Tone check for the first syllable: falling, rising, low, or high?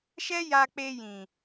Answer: high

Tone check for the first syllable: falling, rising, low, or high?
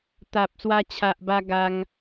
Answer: low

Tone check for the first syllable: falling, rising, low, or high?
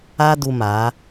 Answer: high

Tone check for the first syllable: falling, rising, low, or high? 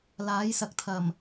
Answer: rising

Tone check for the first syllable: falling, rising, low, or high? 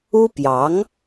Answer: high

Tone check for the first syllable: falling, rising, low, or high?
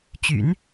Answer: low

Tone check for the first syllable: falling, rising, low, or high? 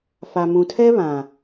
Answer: low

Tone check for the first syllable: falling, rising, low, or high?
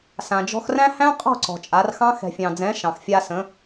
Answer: low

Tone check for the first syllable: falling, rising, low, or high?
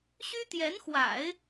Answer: high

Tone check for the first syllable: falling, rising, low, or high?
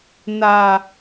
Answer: low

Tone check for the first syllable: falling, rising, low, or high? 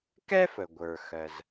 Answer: high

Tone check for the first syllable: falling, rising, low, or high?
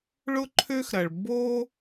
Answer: high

